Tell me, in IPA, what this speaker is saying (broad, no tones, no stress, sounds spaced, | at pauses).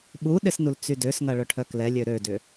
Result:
ɓ u ɗ ɪ s n u l t͡s y d ø s ŋ ɐ ɭ œ ʈʰ œ k l ɛ lʲ ø ɾ ø d ʏ